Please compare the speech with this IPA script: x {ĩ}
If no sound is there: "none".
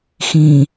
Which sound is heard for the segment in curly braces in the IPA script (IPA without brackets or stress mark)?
ĩ